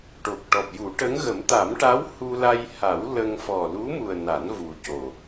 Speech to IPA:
ʈ o˨˩ k̚ ʈ ɔ˨˩ p̚ j u˨˩˦ ʈ ə˧˥ ŋ ɣ ə˨˩˦ m t̪ a˨˩˦ m ʈ a˧˥ w h u˧ l a˧ j h a˨˩˦ w l ə˧ ŋ f ɔ˨˩ l u˧˥ m u˨˩ ə̯ n a˨˩˦ n v u˨˩ c o˨˩

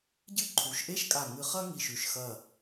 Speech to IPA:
ɟ ɨ˥˧ ǃʰ u˩˧ ʃ ʔ e˥ ʃ kʼ a˧˩ ŋ ɨ˧ χ ɐ˥ ŋ i˧˩ ʃ ʉ˧˩ ʃ x ɐ˥˧

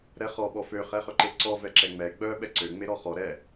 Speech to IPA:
ɾ ɛ χ ɔ ɓ ɔ f ø χ ɛ χ œ ǃ e ǀ ɔ v ɛ ǁ ɛ ŋ͡m ɛ ɡ͡b œ ɓ ɛ ǀ ø ŋ͡m e ɾ ɔ χ ɔ ɾ ɛ

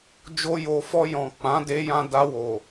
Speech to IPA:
d͡ʒ o˧ j o˨ f ɔ˧ j ɔ̃˨ k͡p ã˨˦ d e˧ j ã˧ d a˧ w o˨

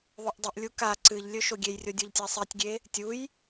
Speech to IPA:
ðˤ o ʔ dˤ ɨ ʔ lʲ u k a ǀ ɨ ʎ lʲ ɵ ʃ o ɡʲ e j rʲ o dʲ o ʎ tʲ a sˤ i tʲ ɡʲ e | tʲ u j

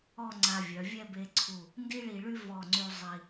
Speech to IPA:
ɔ˥˧ ŋ͡ǀ a˧ vʲ œ˩˧ vʲ ɛ˥˧ b e˧ ǀʰ u˧˩ | n d i˥ ɭ i˧ ɭ y˥ v ɔ˧˩ ŋ͡ǀ y˧ zˤ i˧

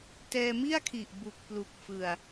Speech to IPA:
t ɛː˧ m i˥˩ a̯ kʰ i˨˩ ʔ b u˨˩ k̚ p l u˨˩ k̚ f ɯ˨˩ a̯

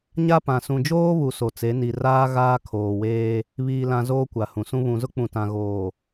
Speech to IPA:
ɲ a˦ p ã˨ s ũ˨ d͡ʒ oː˦ β u˨ s o˨ t͡s e˨˦ n i˨ r aː˦ ɣ aː˦ kʰ oː˨ w eː˦ | β iː˨ l ã˨ z oː˦ kʷ a˨ h ũ˨ s ũ˦ β ũ˨ z ʊ˦ k͡p ũ˨ t ã˨ ɣ oː˨

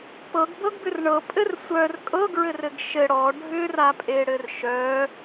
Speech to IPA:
p ɤ ɡ b ɤ ɡ b ʏ r ɳ ɤ pʼ ɘ r sʷ œ r kʼ ɤ ɡ ɹ ɘ r ɘ ɡ ʃ ɘ ɽ ɔ ɖʱ ʏ r a pʼ e ɽ ɘ r ʃ œ

